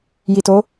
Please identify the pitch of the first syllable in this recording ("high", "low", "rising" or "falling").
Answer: low